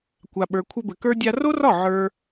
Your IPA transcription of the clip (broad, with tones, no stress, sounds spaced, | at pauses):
kʷ a˨ ɓ ə˞˨ kʷʰ ɘ˧ b ɘ˨ k ə˞˦ dʲ a˦ r o˦ r ɒ˦˨ ʕ ə˞˦